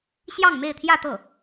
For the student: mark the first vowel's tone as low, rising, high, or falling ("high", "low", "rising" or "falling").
falling